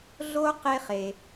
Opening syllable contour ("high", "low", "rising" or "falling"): high